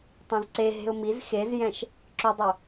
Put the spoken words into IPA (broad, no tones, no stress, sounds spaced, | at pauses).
tˤ ɛ̃ z ǀ e ɦ e̤ ʊ̯ m i z x e z j ɛ̃ ʃ | ǁ ʏ dˤ œ